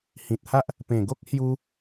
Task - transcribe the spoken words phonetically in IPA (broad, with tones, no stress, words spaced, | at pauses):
hĩ˨t̚ha˦ʔ | pẽ˨˩ɡo˦k̚ hju˦